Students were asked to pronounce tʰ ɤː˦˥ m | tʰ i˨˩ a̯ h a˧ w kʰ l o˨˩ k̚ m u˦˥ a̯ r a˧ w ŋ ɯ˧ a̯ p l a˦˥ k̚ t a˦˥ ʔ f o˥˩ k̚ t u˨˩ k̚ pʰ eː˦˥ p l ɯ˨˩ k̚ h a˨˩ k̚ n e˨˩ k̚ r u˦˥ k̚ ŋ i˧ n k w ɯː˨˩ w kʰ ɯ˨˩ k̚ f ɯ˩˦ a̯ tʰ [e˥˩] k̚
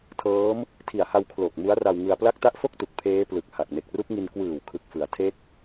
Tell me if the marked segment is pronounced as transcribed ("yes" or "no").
no